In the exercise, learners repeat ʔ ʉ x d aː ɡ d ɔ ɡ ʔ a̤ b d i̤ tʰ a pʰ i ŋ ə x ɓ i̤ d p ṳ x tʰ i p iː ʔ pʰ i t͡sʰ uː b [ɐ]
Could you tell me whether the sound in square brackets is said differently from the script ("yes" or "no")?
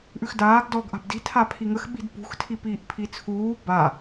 yes